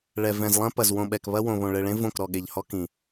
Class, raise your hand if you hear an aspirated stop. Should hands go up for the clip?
no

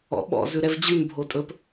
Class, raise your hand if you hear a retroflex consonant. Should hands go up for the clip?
no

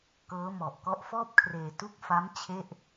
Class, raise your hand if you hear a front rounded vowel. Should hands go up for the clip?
no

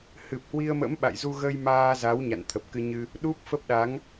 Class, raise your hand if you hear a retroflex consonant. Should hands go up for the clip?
no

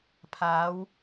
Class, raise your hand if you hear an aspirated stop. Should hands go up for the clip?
yes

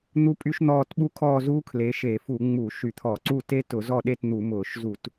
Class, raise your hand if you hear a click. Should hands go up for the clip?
yes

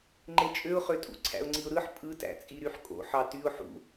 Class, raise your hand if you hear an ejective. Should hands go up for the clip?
yes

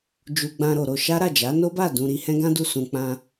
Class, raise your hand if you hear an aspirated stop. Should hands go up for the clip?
no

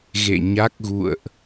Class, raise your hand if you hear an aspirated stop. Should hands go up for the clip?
no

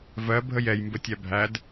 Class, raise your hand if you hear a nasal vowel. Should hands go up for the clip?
no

